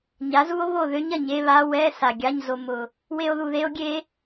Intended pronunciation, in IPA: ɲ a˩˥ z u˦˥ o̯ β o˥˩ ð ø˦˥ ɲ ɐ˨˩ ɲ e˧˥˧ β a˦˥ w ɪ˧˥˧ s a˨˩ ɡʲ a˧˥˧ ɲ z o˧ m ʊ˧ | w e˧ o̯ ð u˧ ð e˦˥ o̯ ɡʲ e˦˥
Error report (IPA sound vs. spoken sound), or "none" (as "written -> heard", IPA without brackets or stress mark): ɪ˧˥˧ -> ɛ˧˥˧